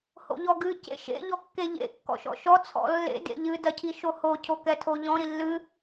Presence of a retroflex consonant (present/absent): absent